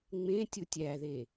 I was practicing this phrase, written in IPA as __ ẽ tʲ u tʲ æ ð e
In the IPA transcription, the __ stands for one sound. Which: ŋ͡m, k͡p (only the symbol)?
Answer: ŋ͡m